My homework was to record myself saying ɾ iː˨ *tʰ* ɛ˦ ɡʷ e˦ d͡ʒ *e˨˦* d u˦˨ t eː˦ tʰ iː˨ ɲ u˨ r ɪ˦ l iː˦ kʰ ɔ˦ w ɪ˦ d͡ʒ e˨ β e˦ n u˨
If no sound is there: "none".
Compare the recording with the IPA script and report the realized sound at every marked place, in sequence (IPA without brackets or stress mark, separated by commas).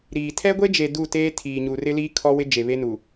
tʰ, e˨